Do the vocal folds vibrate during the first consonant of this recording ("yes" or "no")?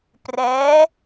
no